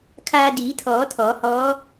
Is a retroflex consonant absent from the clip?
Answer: yes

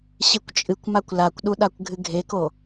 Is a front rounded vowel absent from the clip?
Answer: yes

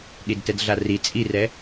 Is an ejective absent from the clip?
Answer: no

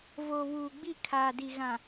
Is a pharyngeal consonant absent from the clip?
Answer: yes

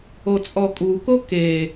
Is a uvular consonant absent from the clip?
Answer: yes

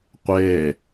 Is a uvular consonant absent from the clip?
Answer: no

